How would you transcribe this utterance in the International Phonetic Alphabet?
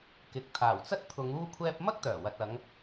kɪ˨˥k̚ t̪ʰaː˨˩wt͡sɐ˥t̚t̪ʰʊ˨˧ŋ uː˥kʷʰɛː˥p̚ mɐ˥k̚t̪œː˨˩wɐ˨t̚ ɐ˨˧ŋ

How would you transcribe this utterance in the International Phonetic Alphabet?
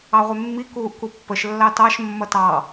ɑʁʷɛmːi kuːʔkupːəʃ lːɑtɑʃ mːʌtɑ

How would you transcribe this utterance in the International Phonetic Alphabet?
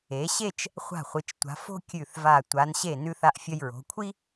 e˩˧ɕe˥˧t͡ʃ | χʷa̤˧˩χʷɨ˩˧t͡ʃtʷa̤˩˧ fo̤˥kʲʉ˧˩θva˧˩ tʷa˩˧nɕe˧˩ nʉ˧θa˧ʔfʲɐ˧j ɹo̤˩˧kʷʰi˥

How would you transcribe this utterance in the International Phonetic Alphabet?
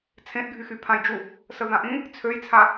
t͡sʰẽʔɡʱyxy pʰãjd͡ʒu | səðãʔĩ | t͡sʰøjt͡sʰa

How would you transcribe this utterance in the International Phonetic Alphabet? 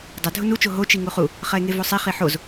dˤɐ dʱʊnut͡ʃo ɦot͡ʃi ŋuχu | χɐe̯ŋevosˤi χiħoz

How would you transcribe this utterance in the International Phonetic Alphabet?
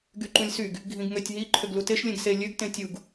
ɡyǃũlʲsyɡ | ɡʱĩɡŋøtʲɦi ǃʰøɡluteʃ lʲẽɡse lʲøɡ tẽtʲuɡ

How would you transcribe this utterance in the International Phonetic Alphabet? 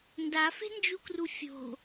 ndafe̤nd͡ʒukru fʲo̤

